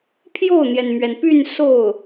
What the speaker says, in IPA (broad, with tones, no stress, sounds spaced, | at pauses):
pʰ j o˥˩ ʊ̯ n̪ j ɛ˩ n m ɥ ɛ˩ n p y˥˧ n s o˥˩ ʊ̯